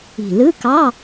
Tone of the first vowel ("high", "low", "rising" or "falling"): low